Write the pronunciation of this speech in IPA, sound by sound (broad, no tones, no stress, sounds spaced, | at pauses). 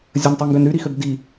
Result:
zʲ ə n tˤ u ŋ ɡ ø n ɾ y ɾ i x ø b d i